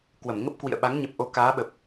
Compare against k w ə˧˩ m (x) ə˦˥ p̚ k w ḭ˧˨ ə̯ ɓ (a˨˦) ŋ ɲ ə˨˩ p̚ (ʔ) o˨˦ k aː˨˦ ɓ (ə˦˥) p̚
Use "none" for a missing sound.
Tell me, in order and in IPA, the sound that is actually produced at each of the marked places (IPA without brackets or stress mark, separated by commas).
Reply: ŋ, a˨˦, ʔ, ə˨˩